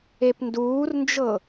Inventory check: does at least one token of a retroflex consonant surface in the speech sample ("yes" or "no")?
no